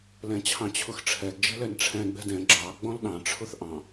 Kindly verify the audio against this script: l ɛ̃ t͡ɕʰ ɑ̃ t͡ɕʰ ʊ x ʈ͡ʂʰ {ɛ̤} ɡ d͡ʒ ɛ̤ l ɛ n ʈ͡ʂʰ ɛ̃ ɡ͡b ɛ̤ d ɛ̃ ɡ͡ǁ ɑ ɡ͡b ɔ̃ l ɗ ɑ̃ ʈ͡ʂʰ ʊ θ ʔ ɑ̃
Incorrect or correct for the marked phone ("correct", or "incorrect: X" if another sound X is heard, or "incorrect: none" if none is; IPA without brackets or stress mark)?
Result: incorrect: ɛ